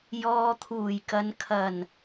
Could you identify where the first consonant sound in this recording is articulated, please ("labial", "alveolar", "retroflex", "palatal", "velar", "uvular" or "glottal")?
palatal